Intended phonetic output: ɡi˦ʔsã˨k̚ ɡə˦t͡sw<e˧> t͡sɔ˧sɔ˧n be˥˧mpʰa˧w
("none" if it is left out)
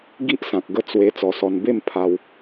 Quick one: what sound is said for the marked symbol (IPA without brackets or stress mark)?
e˧